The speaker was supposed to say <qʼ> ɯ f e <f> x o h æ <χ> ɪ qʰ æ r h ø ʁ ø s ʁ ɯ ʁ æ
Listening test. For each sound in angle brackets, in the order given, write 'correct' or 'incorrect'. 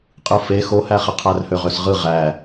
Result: correct, incorrect: none, correct

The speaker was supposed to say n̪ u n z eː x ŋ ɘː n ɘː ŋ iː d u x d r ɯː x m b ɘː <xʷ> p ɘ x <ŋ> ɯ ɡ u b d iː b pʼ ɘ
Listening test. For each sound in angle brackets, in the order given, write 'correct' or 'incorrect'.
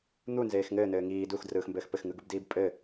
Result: incorrect: x, correct

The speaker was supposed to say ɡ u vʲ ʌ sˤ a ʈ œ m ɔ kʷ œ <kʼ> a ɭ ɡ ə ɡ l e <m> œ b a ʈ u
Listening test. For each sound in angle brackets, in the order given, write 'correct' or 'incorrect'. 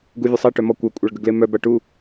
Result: incorrect: kʷʼ, correct

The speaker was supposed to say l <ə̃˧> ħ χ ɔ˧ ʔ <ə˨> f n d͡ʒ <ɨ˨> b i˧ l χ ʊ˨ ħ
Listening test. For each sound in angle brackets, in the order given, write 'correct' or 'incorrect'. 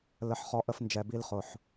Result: incorrect: ə˧, incorrect: ə˧, incorrect: ɛ˨

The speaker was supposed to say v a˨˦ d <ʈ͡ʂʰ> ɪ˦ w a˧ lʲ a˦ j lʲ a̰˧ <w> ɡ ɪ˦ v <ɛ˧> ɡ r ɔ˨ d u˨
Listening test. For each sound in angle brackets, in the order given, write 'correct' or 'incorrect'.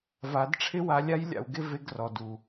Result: correct, correct, incorrect: e˧

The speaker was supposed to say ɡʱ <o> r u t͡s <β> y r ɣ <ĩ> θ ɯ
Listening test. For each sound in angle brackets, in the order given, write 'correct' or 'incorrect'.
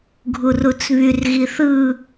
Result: incorrect: u, correct, incorrect: i

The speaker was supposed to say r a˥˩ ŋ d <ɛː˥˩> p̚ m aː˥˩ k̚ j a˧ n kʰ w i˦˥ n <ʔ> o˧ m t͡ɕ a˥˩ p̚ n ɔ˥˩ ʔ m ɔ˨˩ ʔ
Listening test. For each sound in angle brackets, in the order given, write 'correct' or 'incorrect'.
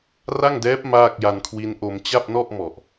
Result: incorrect: ɛː˦˥, correct

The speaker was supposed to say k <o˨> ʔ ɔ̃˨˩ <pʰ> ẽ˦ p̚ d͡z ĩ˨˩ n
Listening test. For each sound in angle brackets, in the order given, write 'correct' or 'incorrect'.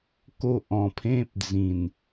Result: incorrect: o˦, correct

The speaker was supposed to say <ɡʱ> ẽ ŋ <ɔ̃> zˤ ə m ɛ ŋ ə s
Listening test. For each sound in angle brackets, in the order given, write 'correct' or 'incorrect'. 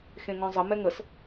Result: incorrect: x, correct

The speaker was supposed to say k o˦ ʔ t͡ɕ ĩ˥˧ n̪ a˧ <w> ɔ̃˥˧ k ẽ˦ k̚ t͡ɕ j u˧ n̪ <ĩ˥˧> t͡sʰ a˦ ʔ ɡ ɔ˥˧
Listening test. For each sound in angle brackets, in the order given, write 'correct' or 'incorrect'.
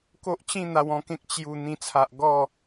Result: correct, correct

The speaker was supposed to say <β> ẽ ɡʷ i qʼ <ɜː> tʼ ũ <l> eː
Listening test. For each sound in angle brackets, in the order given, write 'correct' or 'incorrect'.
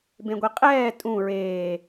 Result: incorrect: b, incorrect: ɛː, incorrect: ɹ

